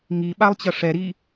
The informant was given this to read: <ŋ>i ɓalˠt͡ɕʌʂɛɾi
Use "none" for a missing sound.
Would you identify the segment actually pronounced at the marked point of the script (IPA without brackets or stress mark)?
ŋ